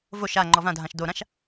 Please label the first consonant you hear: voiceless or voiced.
voiced